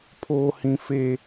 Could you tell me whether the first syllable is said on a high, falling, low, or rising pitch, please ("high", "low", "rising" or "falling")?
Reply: high